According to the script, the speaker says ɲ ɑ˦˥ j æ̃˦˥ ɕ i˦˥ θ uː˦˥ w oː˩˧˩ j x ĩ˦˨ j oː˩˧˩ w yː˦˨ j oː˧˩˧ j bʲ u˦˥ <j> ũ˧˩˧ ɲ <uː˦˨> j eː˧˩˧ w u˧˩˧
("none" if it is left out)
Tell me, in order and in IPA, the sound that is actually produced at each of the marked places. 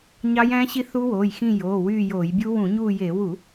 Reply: w, uː˦˨

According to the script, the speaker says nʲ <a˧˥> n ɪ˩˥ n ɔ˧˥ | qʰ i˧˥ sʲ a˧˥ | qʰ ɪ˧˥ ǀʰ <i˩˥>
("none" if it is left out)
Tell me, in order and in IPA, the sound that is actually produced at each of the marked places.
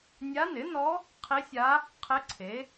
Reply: a˧˥, e˩˥

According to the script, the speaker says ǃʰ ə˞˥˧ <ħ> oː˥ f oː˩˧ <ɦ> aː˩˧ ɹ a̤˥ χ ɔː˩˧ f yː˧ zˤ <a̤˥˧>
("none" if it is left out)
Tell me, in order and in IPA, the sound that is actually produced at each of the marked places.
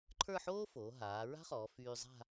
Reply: ħ, ɦ, a̤˥˧

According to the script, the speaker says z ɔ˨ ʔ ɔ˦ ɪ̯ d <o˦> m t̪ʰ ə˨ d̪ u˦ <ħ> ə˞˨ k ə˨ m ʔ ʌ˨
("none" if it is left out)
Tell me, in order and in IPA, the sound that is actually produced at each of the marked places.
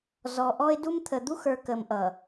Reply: u˦, x

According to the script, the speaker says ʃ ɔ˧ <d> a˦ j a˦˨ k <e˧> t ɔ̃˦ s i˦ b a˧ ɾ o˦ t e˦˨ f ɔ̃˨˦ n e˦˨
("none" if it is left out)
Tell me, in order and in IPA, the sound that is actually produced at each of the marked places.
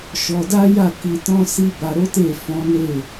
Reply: d, i˧

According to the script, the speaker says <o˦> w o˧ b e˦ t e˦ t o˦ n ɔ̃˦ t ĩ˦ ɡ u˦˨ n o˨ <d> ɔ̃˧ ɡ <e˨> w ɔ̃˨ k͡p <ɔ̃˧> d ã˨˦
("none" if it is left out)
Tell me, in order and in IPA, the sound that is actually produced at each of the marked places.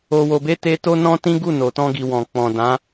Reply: o˧, t, i˨, ɔ̃˨

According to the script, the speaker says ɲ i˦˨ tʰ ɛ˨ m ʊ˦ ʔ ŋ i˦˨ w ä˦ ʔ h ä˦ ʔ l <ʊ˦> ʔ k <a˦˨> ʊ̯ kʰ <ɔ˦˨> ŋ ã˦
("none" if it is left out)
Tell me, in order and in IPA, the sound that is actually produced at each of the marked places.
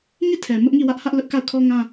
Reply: ʊ˦, a˦˨, ɔ˦

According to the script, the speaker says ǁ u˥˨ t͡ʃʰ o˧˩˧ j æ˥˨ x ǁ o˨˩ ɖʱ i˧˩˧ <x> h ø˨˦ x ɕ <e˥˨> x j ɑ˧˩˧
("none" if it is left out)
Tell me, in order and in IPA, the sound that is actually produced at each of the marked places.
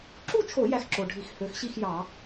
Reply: x, i˥˨

